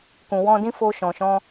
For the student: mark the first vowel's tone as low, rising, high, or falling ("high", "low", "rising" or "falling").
low